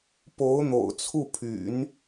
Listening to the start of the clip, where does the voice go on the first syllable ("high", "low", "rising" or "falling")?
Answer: rising